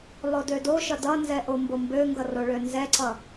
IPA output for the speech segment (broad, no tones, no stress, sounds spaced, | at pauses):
lˠ o d ø d o ʃ ʌ d ʌ n z ɛ ʔ o m b o m b ø ŋ ɡ ʌ r o ɭ ø n z ɛ ǀ ʌ